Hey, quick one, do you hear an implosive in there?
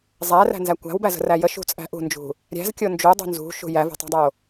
no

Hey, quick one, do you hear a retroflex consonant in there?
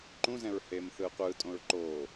no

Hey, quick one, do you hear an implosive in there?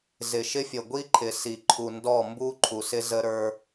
no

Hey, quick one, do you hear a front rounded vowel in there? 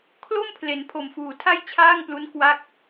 no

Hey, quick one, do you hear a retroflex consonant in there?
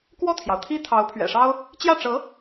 yes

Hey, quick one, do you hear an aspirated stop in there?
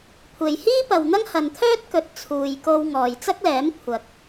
yes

